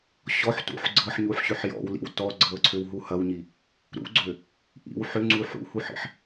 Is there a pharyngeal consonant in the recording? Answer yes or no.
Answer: yes